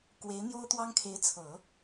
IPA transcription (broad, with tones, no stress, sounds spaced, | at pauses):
k w e˧˥ ɪ̯ n̪ j o˥ ʊ̯ t̪ w ɑ˥ ŋ kʰ e˧˥ ɪ̯ t͡sʰ ɤ˨˩˦